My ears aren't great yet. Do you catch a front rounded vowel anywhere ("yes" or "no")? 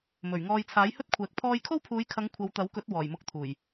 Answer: no